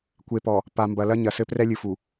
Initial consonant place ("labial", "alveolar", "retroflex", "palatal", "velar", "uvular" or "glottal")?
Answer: velar